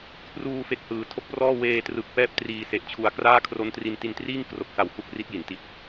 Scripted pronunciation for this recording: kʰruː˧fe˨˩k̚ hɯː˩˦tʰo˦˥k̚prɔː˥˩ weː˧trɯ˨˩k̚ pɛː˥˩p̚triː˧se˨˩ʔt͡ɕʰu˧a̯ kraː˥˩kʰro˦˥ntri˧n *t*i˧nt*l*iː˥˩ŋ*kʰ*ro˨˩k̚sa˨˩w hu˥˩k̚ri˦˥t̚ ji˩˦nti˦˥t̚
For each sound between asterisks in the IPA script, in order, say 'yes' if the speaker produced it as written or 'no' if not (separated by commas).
yes, no, no